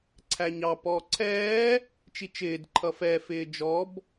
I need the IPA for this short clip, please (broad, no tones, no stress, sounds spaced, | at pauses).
ǀʰ æ ɲ ɑ p ɔː ǀʰ ɛː | t͡ʃ i t͡ʃ ɪː d ǃʰ ʌ f ɛ f ɪː d͡ʒ ɔ b